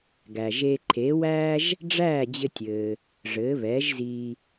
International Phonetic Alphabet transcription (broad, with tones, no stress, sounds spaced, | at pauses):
ɡ æ˩ ʒ e˧ ǃʰ eː˩˥ w æː˥ ʒ | ɖ͡ʐ æː˥˩ d͡ʑ ɘ˧ tʲ ɘː˩ | ʐ ɘː˩˥ β ɛː˩˥ ʒ z iː˧